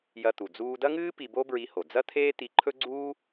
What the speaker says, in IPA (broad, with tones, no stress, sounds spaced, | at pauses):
j ɐ˧ t̪ u˩ d͡z uː˧ d ɐ˥ ŋ ɨː˥ p i˧ b o˥ b ɹ i˧ h o˩ d͡z ɐ˥ t̪ʰ eː˥ t̪ i˧ ǃʰ ɵ˥ ɡ͡ǀ uː˥